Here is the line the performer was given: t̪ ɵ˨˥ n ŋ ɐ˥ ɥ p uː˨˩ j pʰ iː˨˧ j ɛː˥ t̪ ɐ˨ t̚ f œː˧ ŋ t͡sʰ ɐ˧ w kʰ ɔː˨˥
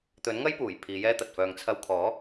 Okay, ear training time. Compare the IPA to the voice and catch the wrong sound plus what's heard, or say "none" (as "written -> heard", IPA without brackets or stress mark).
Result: ɥ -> j